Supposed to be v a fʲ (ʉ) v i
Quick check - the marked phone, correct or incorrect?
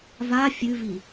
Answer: correct